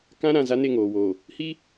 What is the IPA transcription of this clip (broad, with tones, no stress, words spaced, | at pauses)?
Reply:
kã˦ɾã˨ za˦ne˦˨ŋoː˨woː˨ | hi˦